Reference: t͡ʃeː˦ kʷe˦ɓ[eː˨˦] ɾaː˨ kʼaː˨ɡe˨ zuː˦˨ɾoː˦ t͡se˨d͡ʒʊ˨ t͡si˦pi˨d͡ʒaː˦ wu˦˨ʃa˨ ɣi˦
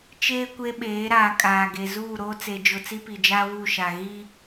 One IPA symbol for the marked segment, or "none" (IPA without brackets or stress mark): eː˨˦